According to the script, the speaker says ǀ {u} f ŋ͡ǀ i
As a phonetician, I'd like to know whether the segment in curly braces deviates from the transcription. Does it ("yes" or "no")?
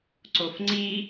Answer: yes